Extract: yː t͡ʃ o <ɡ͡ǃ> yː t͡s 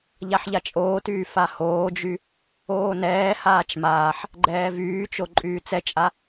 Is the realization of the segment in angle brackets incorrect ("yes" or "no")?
yes